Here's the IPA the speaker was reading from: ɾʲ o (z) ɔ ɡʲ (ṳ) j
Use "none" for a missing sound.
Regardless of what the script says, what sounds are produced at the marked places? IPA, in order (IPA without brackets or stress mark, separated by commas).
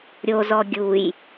z, u